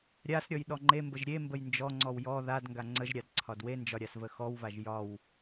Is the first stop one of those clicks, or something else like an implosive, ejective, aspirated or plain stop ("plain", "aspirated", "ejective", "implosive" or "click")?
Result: implosive